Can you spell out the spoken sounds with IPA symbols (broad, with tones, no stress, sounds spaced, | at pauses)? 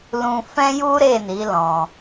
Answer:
l ũ˧ f ɛ̃˦ j u˦ ɾ e˦˨ n i˨˦ l ɔ̃˧